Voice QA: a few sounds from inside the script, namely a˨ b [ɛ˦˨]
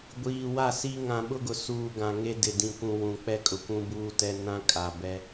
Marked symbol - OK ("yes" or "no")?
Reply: no